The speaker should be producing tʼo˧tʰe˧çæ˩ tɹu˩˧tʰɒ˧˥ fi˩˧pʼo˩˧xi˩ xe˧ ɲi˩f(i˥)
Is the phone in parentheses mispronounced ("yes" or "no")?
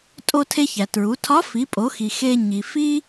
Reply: no